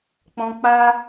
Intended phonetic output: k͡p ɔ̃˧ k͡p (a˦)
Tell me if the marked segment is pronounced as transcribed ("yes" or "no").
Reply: yes